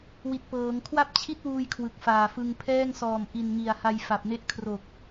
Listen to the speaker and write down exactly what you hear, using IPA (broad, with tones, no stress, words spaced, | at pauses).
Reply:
wi˨˩t̚pɤː˩˦ŋ kʰwa˥˩p̚t͡ɕʰi˥˩t̚wuː˧j kʰwɯ˨˩k̚faː˨˩fɯ˧ŋ pʰɛː˥˩ŋsɔː˨˩mʔi˨˩nŋi˨˩a̯ ha˧jfa˨˩p̚ne˦˥ʔkʰro˨˩k̚